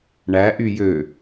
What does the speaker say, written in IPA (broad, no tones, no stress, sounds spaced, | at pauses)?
ɳ æ ʔ y j ø